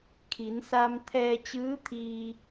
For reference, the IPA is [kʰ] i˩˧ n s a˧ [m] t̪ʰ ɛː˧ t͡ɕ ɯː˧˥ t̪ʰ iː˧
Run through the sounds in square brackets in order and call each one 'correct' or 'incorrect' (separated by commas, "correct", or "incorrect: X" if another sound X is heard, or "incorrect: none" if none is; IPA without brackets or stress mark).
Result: correct, correct